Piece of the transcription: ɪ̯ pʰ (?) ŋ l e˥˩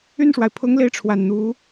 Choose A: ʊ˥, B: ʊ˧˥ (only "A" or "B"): A